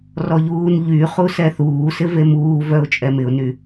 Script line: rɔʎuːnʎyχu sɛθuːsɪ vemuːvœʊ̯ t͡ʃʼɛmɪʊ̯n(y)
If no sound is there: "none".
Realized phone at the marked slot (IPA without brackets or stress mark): y